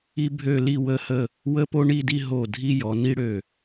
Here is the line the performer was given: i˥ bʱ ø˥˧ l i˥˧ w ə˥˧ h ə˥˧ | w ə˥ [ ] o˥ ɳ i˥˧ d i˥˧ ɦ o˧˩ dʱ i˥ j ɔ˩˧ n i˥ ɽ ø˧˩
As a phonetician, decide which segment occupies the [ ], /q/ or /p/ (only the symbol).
p